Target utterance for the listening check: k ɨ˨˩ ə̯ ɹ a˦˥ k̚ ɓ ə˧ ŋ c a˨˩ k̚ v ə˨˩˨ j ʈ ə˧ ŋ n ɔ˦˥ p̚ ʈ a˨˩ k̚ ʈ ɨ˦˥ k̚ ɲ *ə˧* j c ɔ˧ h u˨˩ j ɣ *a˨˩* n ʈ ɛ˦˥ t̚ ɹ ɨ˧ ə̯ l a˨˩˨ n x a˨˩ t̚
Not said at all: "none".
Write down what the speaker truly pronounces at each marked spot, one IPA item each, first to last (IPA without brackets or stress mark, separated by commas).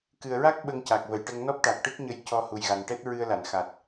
ə˧, a˨˩